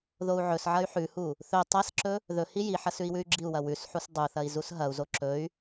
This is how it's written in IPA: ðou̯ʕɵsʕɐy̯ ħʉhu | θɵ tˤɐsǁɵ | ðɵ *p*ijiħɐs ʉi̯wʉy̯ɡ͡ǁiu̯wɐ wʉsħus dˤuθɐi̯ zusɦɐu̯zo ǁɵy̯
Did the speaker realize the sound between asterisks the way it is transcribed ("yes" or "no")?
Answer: no